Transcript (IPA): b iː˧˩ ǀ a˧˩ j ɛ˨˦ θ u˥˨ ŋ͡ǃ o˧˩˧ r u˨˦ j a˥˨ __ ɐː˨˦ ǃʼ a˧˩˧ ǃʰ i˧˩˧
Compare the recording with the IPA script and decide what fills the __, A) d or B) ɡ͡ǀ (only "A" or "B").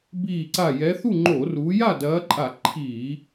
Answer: A